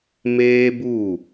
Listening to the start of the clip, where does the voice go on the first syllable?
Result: high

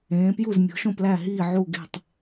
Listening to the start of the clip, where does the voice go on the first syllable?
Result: rising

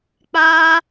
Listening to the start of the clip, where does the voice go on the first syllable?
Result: high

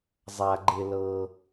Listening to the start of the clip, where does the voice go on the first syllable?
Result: low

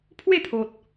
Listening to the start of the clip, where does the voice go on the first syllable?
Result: falling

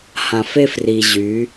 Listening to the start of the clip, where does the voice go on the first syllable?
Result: low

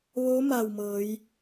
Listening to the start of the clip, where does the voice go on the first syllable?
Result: rising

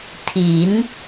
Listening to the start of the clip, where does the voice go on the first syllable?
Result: rising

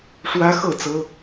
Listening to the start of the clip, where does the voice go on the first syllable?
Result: high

